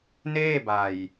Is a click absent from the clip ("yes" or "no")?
yes